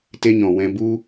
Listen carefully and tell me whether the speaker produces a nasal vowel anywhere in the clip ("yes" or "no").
yes